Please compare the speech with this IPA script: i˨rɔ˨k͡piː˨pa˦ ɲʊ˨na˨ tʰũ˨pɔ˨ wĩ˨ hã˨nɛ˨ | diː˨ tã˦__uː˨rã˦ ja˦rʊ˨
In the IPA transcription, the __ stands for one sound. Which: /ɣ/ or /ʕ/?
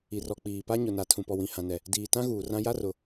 ɣ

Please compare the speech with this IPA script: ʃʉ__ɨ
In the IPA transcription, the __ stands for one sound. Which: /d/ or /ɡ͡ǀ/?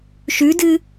d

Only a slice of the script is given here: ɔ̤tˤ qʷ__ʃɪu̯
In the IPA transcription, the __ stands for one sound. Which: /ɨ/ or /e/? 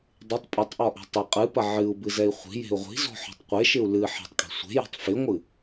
e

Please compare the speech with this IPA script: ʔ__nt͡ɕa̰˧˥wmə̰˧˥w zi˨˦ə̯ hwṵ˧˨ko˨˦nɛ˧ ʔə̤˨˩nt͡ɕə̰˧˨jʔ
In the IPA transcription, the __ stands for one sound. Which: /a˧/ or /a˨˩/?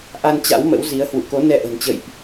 a˧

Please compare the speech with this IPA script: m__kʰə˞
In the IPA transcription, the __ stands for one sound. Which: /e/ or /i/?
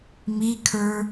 i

